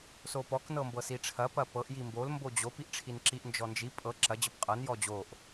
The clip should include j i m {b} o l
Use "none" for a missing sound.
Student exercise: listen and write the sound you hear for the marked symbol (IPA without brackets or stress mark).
b